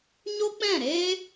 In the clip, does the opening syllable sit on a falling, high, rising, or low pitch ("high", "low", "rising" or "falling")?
high